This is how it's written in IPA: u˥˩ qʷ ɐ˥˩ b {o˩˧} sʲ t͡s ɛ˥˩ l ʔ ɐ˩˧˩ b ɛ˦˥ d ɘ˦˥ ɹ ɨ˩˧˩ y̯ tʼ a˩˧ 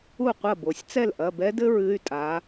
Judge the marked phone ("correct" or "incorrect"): correct